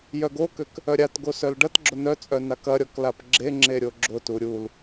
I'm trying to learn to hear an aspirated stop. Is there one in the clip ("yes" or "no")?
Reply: no